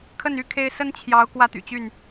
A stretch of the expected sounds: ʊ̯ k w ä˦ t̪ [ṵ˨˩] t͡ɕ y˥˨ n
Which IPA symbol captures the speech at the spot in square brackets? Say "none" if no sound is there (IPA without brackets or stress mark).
y̰˨˩